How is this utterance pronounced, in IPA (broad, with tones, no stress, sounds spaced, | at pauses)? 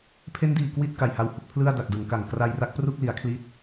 pʰ e˦˥ n d iː˨˩ k w i˥˩ t̚ k a˨˩ j h a˧ w h u˦˥ k̚ pʰ l ɯ˥˩ a̯ d a˨˩ k̚ d ɯ˩˦ ŋ k a˨˩ ŋ k r a˧ j r a˦˥ k̚ p r u˥˩ k̚ l i˩˦ a̯ kʰ l i˥˩ t̚